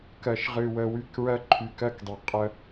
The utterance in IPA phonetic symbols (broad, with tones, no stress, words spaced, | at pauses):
kɜ˨ʃʁɨ˨wə˨ wy˦kɹɜ˦ ǃʰy˨kɜ˦kdˤə˨ qʼə˦